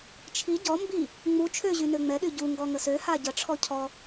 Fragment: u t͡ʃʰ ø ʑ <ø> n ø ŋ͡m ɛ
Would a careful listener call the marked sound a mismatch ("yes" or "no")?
yes